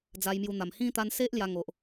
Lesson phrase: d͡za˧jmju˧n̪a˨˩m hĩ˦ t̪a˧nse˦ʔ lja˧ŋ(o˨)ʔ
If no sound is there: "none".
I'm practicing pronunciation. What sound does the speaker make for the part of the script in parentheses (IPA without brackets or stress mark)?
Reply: o˨